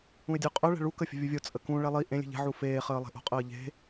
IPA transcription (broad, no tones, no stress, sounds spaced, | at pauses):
ũ ɪ̯ dʲ œ qʼ œ ɭ ɛ̤ ɭ u k ə fʲ ə̤ vʲ u vʲ o t͡sʼ ə k ũ ɭ ɛ lˠ i ʔ ẽ lʲ e̤ ʎ ɛ̤ ʕ u f eː χ əː lˠ e̤ ʔ o̤ qʼ əː ʎ e̤